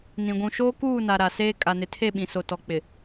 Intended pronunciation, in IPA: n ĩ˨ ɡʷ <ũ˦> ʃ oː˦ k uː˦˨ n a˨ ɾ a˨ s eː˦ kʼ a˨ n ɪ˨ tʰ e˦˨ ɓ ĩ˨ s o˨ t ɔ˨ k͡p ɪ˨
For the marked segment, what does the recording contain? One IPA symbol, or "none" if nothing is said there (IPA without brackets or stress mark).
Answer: ũ˨